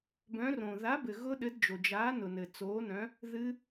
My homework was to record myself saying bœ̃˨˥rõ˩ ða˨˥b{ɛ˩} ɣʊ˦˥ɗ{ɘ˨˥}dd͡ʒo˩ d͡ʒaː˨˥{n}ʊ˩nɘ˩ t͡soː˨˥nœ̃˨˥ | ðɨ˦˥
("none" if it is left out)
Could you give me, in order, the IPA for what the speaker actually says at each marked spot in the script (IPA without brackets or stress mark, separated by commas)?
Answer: ɘ˩, ɘ˨˥, n